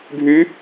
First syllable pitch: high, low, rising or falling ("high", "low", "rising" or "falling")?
rising